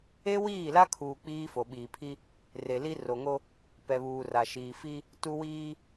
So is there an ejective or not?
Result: no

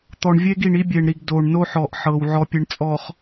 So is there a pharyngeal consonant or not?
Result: yes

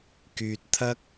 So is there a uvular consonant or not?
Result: no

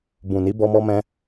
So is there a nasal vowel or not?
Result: yes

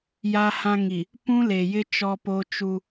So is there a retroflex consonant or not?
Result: no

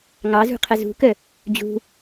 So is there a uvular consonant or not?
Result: yes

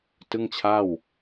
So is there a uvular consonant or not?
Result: no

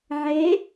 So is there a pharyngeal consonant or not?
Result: yes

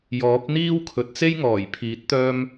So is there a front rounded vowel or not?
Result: yes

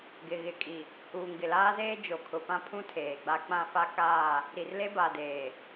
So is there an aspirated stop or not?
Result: yes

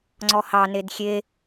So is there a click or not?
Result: yes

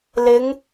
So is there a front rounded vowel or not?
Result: no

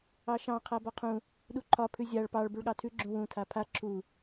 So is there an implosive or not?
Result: yes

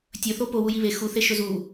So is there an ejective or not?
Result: no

